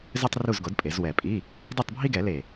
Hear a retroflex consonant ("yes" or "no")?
no